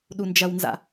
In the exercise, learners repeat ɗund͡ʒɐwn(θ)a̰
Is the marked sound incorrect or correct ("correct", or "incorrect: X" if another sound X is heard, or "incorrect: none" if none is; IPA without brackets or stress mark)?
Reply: incorrect: z